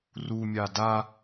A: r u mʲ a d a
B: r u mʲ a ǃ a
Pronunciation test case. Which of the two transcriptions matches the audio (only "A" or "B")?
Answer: A